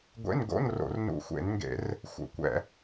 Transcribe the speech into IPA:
ɡʷḛ˧˥˧nɡo̰˧˥˧nro̰˧˩˧r nṵ˧˩˧xʷḛ˧˩˧nŋɡḛ˧˩˧r | xʷə̰˧˩˧kʷɛ̰˧˩˧

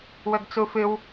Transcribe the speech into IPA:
wɵɡt͡sufɨw

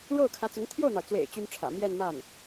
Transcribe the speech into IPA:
ɻo˥˩ʊ̯kʰä˧˥t͡sʊ˧˥ŋ t̪ʰjo˥˩ʊ̯n̪ɑ˩ʊ̯t͡swḛ˨˩ɪ̯ t͡ɕy˥nʈ͡ʂʰä̰˨˩ mjɛ˥˧nma˥˩n

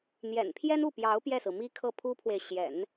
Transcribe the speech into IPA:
n̪jɛ̰˨˩npʰjɛ˥n u˥˩pjɑ˧˥ʊ̯ pjɛ˥˩sɹ̩˩mi˥ kʰɤ˥˩pʰu˥pʰwe˨ɪ̯ ɕjɛ̰˨˩˦n

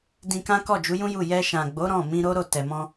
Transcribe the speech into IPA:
dĩ˧kã˦kɔ˦˨ d͡ʒu˨˦jũ˦ju˦˨ jɛ˧ ʃã˨ɡ͡bo˨˦ ɾɔ̃˦˨ mĩ˧ɾo˦ɾo˦˨ tɛ˨mɔ̃˧

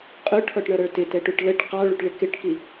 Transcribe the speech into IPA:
qʼʊʈʰɔʈɳʌɾə˞ tɪtɛʈuʈ ləʈ qɑɭuʈɭɪ kɪʈki

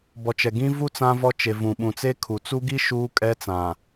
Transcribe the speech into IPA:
bɔ˨t͡ʃɛ˨ɡĩ˦ vu˦ t͡sã˦vɔ˦t͡ʃe˨ vũ˨ɓũ˨t͡se˦kʰu˨ t͡su˦ɡi˦ ʃuː˦kʼɛ˦t͡sã˨

